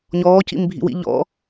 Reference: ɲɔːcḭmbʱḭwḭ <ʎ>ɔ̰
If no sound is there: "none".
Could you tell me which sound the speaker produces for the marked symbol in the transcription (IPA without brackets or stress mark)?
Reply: ʎ